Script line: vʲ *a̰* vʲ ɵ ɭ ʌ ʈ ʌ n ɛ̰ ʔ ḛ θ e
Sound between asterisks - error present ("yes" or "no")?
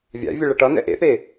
no